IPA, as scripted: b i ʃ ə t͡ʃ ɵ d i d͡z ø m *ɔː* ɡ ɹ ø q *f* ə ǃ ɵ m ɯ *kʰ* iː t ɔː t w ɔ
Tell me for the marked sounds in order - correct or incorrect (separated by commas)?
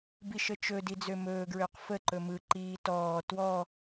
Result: incorrect, correct, incorrect